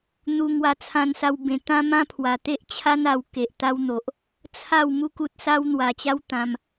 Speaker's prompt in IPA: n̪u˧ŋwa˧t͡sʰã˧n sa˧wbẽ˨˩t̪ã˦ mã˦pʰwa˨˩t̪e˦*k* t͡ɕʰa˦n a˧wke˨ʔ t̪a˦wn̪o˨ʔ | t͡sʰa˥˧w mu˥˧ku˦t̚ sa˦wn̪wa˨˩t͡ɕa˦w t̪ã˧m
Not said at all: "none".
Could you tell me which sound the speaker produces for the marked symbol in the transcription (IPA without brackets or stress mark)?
ʔ